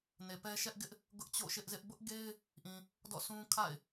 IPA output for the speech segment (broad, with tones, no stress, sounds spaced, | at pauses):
n e˨ p ɛ˦ ʃ ɛ˦ ʔ ɡ ɪ˦ ʔ | ɡ ʊ˦ ʔ t͡ɕ o̰˦˨ ʃ ɪ˦ ʔ z ɪ˦ ʔ b ʊ˦ ʔ ɡ e˦ ɪ̯ | ʔ ĩ˨ | d ɔ̰˦˨ s ũ˦ kʰ a̰˦˨ ɪ̯